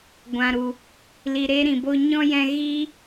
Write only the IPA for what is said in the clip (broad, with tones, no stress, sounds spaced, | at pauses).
ɡʷ ã˨ ɾ u˨ | l i˨ ɾ e˧ ɾ ĩ˨ b o˦ ɲ ɔ̃˦ j ɛ̃˧ ɣ i˦